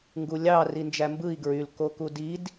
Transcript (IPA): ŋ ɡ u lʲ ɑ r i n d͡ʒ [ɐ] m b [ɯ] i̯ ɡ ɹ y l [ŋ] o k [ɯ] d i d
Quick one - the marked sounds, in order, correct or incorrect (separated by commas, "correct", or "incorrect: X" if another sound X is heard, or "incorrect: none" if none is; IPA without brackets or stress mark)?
incorrect: æ, correct, incorrect: k, incorrect: u